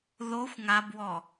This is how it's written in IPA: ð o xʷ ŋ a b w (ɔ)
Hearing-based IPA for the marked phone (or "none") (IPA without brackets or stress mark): ɔ